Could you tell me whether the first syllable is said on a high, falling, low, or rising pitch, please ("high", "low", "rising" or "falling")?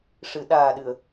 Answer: low